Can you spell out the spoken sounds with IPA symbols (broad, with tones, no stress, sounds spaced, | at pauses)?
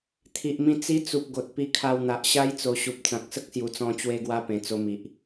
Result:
t̪ʰ i˨ ʔ m ĩ˧ t͡s i˦ t͡s u˨ p̚ ɡ o˨ t̚ p i˧ kʰ a˧ w n̪ a˨ ʔ ɕ a˦ j t͡s o˨˩ ɕ u˨ p̚ t͡s ã˨ k̚ s ə˦ k̚ s j u˨˩ t͡s ɔ̃˧ t͡ɕ w e˧ ɡ w a˧ p ẽ˨˩ t͡s o˧ m i˨ ʔ